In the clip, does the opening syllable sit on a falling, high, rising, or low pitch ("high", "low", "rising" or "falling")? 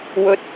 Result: rising